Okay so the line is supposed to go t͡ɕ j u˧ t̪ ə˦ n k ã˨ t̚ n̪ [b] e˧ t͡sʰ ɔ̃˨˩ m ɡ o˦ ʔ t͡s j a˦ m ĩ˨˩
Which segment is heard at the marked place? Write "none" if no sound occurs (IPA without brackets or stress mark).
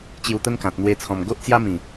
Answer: w